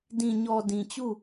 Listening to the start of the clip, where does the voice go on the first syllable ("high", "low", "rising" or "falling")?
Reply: low